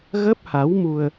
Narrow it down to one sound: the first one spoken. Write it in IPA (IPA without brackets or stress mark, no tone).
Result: ɣ